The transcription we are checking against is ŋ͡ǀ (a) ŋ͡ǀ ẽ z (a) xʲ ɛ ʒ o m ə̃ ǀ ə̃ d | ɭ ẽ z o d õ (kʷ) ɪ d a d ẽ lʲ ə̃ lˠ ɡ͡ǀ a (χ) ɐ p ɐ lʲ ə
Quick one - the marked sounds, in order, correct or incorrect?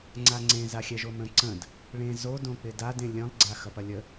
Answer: correct, correct, incorrect: k͡p, incorrect: x

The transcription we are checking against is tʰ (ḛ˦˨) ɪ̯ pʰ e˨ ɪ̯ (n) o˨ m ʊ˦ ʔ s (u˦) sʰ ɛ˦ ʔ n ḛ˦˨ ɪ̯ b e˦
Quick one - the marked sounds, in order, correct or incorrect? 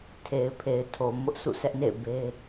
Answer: incorrect: e˨, incorrect: tʰ, incorrect: ṵ˦˨

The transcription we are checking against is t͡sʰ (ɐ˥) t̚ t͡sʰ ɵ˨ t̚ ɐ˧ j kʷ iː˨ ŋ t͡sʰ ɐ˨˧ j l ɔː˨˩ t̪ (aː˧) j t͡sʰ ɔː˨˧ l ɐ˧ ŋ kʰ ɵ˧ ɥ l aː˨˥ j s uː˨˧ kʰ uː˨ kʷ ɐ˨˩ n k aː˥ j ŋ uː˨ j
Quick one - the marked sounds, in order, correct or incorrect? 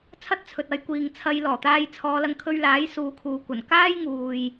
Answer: correct, correct

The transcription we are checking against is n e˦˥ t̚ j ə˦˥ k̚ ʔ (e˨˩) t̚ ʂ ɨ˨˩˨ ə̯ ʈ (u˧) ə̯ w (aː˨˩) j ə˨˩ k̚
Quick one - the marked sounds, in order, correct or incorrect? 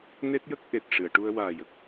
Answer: correct, correct, correct

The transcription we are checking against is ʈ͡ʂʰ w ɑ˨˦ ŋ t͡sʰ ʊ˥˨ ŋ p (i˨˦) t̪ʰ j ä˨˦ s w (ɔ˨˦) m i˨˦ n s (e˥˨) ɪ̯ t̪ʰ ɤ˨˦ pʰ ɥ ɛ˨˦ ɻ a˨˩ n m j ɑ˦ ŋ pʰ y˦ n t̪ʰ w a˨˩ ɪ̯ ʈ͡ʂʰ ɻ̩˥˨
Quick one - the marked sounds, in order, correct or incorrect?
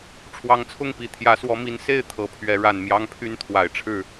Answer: incorrect: i˨˩, correct, correct

